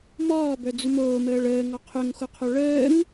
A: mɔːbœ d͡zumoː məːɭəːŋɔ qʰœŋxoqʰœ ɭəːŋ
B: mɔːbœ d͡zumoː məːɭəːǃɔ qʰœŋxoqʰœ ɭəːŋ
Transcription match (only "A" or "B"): A